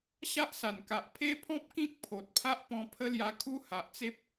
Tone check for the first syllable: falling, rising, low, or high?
high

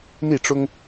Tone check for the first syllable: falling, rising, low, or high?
falling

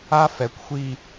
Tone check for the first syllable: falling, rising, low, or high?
high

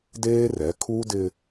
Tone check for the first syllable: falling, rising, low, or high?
high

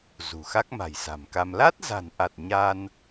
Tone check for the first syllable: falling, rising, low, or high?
low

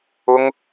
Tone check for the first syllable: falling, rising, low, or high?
high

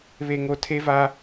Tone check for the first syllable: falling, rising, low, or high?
low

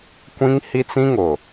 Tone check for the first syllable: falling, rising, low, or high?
high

